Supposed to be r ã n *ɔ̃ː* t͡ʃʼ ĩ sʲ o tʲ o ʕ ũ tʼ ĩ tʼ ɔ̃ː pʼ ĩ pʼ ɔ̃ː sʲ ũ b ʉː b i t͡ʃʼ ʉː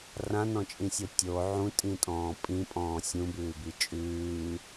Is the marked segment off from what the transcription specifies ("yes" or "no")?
yes